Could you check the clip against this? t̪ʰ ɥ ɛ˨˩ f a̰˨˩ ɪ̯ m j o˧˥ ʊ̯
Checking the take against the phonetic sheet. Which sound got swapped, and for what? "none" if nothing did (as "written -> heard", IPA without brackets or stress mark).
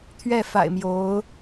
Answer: ɛ˨˩ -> ɛ˥˩